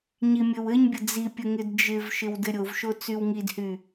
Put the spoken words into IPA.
ɲimʲɘwɘɲbʲə d͡zipʲɘ ŋɪdd͡ʒɪvʃɪw dɘɾʲovʃo t͡sywŋidhy

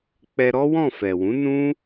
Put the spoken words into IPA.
k͡pɛ˧ɾɔ˦wɔ̃˦˨ fɛ˨wũ˨˦nũ˦

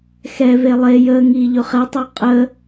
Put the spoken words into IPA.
xɛve lˠe jəːŋiː ʎɵχɛtˤɑ qʼə

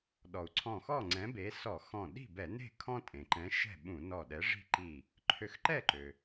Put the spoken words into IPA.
ɗɔ˩u̯ ǀʰɔ̃˧˩xɔ˥˨ŋ͡ǀɛ̃˨˥ be˨˥ sɔ˧˩˧ xɔ̃˧˩ ɗi̤˥˨bɛ˧˩˧ne̤˥˨kʰɔ̃˦ tʼẽ˩ǃɛ̃˨˥ ʃɛ̤˥˨ɓũ˧˩˧nɔ˧˩ ɗɛ˨˥ʐi̤˦ǃi˧˩ | ǃʰø˧˩xǃɛ˥˨ǃø˩

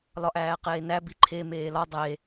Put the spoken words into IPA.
lɒʔæːqeːnæ biǃʰe meːlɒ dˤe

